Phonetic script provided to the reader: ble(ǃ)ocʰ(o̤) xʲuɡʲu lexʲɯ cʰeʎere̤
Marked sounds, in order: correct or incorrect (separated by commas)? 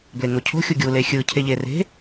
incorrect, correct